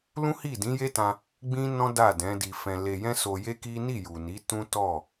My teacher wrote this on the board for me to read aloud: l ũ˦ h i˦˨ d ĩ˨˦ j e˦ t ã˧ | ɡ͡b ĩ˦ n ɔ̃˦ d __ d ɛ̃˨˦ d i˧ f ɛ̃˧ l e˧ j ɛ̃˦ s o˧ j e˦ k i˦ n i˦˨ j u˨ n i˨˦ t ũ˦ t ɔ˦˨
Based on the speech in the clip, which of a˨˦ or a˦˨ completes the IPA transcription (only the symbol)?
a˦˨